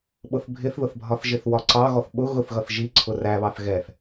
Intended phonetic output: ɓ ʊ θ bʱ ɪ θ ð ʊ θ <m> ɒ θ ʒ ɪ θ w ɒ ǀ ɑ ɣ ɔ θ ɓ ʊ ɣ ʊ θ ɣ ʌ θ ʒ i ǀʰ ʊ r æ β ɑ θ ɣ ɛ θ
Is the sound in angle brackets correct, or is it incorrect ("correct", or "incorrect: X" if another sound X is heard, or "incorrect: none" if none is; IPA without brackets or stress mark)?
incorrect: bʱ